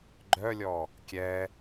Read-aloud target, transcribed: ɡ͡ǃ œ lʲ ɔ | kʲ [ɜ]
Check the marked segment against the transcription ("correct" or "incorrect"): incorrect